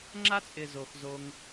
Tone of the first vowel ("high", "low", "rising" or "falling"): high